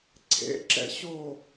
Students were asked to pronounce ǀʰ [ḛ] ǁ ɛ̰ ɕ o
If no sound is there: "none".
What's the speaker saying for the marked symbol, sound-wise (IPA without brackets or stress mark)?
ḛ